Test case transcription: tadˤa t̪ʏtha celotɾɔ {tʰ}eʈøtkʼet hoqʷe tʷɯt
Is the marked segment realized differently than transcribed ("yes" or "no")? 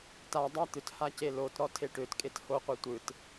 no